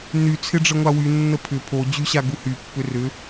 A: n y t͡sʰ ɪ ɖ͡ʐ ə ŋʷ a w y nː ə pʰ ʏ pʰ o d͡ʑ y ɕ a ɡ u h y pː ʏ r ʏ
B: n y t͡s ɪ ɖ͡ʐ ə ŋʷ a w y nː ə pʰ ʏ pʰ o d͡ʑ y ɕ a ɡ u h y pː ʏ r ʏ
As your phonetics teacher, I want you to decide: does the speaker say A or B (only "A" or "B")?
A